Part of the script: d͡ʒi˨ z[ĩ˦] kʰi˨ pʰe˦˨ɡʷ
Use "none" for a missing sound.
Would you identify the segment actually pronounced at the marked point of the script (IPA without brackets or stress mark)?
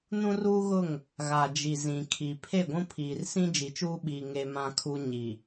ĩ˨